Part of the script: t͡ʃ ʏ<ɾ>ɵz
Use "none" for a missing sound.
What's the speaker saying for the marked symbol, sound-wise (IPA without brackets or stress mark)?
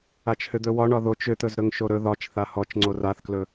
t̪